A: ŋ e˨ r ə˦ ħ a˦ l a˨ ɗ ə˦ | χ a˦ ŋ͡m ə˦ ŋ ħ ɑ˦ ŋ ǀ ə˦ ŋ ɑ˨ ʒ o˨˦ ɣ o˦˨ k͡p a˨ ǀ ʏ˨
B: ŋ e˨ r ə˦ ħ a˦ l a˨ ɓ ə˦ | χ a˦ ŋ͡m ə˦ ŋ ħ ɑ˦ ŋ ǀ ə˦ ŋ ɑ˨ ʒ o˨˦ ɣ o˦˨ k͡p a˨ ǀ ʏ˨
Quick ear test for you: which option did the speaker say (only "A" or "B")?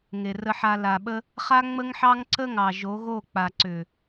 B